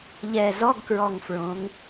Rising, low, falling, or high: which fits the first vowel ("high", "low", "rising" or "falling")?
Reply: low